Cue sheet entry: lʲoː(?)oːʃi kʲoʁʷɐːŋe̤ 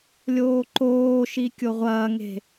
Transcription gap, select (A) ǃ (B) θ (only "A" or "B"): A